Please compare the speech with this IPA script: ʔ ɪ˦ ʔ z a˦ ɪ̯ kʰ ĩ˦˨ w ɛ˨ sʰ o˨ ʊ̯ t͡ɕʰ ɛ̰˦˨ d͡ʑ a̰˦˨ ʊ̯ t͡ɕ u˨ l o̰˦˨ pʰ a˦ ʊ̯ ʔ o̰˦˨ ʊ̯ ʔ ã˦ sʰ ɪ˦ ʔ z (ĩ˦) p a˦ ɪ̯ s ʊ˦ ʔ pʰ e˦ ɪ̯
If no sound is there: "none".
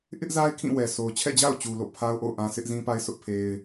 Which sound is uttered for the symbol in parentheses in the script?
ĩ˦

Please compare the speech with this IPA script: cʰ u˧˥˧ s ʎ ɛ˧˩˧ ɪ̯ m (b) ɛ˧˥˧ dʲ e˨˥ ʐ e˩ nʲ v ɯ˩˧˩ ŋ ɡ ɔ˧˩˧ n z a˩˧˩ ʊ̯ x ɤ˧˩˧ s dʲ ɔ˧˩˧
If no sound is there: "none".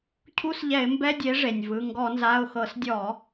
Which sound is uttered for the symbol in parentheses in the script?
b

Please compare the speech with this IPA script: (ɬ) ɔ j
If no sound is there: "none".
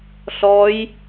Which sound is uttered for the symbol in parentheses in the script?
ɬ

